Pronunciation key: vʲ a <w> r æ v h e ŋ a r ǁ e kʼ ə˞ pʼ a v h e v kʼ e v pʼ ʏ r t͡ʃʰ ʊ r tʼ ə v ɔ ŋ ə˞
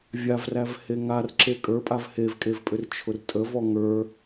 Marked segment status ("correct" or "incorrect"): incorrect